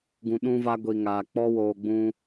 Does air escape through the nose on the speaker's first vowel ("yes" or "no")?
yes